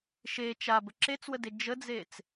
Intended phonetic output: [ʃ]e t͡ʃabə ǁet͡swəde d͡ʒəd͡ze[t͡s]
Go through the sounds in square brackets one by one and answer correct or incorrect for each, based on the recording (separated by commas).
correct, correct